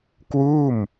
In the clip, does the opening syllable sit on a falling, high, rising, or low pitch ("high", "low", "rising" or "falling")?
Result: falling